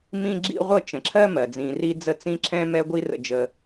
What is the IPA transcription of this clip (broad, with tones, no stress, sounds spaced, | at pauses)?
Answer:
m ĩ˥ ɡ͡ǁ ḭ˥ ʁʷ ɤ˥ t͡ʃ ə̃˩ ǁʰ ɜ˥ m ɜ˩ d͡z ĩ˩ r i˥ d͡z ə˥ t͡s ĩ˥ ǁʰ ɛ̃˥ m ɛ˥ ɡʷ i˥ r ə̰˩ d͡ʒ ə˩